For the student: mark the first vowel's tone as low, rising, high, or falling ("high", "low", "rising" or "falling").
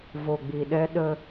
low